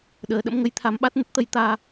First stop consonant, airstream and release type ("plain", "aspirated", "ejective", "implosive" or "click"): implosive